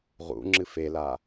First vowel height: high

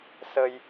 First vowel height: mid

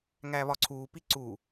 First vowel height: low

